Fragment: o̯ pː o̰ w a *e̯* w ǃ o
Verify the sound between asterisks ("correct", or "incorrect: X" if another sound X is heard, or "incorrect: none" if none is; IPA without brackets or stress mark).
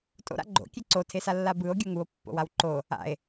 incorrect: none